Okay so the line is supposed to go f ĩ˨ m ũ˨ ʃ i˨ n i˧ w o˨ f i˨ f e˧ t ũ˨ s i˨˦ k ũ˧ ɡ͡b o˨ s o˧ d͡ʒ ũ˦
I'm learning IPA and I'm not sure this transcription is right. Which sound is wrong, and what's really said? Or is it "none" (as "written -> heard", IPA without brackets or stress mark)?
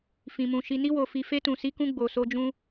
none